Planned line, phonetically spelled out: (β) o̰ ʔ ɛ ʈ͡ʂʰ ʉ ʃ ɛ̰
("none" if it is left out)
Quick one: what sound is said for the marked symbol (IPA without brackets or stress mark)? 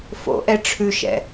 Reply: f